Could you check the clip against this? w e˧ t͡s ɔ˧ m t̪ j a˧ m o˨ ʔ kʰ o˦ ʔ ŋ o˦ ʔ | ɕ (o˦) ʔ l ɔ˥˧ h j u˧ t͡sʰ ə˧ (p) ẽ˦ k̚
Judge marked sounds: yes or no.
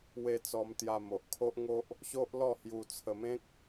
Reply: yes, no

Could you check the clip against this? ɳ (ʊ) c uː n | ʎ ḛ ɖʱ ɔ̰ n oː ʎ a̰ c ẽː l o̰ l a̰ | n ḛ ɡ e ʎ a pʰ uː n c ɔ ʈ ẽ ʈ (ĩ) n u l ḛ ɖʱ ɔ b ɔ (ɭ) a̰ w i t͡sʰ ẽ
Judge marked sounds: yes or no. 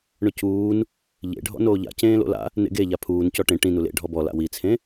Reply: yes, yes, no

